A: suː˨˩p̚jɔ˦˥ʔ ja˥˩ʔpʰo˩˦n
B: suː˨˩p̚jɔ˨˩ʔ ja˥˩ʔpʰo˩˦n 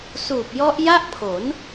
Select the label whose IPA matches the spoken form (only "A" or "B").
A